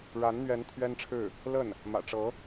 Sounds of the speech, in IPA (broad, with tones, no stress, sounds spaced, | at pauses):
ɻ a˧˥ n n̪ ɥ ɛ˧˥ n t̪ʰ ɥ ɛ˥ n ʈ͡ʂʰ ɻ̩˥˩ | l ə˥˩ n | m ä̰˨˩ ʈ͡ʂ ɤ˧˥